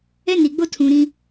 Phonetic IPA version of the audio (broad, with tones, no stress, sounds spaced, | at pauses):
ɛ˦ n i˨ ɡ͡b o˦ tʰ ũ˨ ɾ ĩ˦